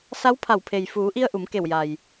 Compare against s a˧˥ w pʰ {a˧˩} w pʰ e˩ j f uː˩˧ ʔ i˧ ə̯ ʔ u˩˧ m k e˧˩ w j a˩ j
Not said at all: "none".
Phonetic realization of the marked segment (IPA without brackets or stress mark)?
a˧˩